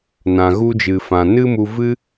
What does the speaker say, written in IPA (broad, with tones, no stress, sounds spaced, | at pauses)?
n ã˨ ɣ u˧ d͡ʒ ɨ˨ f ã˨ n ɨ˦ m u˧ v ɨ˦